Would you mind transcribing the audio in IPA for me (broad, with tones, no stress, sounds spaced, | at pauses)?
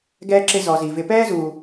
ɡ ɛː˦ ǁ ɪ˦ z ɔ˧ z i˧ v ɪ˧ p ɛː˦ z uː˧